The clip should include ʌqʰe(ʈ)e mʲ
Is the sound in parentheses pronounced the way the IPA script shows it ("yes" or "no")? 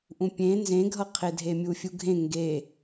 no